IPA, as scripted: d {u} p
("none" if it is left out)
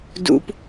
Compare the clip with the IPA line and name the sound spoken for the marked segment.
ṵ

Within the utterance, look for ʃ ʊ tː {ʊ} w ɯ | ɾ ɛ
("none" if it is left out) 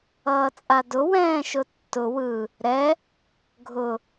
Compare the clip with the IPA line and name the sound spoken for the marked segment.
ʊ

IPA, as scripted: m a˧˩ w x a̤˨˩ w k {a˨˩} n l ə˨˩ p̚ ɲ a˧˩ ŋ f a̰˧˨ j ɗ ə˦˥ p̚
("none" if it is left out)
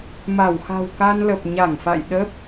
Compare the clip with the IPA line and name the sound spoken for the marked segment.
a˧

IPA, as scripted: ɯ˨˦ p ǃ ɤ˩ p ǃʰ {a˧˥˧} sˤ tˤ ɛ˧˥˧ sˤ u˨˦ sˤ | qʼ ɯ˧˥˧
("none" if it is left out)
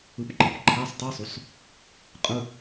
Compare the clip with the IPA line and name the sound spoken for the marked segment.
a˧˥˧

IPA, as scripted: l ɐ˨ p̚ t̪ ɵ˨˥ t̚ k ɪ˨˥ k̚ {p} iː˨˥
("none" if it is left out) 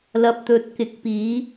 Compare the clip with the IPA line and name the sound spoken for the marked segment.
p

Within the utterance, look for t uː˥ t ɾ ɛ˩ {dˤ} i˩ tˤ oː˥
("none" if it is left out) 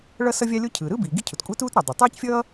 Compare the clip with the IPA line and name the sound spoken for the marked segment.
dˤ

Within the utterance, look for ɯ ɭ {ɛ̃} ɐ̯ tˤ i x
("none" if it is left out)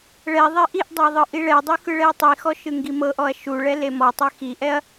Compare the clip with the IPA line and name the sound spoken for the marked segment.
ɛ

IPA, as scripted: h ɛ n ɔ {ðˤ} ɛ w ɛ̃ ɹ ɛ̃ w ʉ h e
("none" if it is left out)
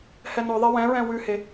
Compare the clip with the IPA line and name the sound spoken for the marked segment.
ðˤ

